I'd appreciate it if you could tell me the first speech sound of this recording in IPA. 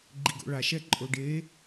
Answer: ɡ͡ǃ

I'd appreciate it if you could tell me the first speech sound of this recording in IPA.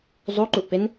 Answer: zˤ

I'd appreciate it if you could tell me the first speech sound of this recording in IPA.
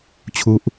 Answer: t͡ɕʰ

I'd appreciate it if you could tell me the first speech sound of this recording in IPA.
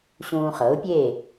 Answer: ɕ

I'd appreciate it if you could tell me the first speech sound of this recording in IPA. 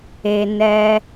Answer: e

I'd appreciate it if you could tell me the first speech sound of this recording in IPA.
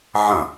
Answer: ʕ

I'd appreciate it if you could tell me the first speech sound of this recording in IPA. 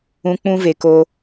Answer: ũ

